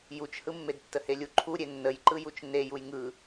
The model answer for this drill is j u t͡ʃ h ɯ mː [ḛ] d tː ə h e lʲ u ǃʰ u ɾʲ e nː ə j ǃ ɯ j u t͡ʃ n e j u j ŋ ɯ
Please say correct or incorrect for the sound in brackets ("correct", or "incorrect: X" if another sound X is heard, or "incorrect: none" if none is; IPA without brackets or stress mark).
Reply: incorrect: e